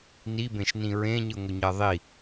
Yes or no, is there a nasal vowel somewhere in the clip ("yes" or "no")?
yes